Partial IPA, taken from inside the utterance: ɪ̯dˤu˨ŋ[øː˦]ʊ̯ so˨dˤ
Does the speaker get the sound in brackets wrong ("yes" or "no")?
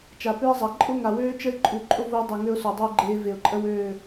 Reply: yes